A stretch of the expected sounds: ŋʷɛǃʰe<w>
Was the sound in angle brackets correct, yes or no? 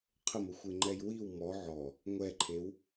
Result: yes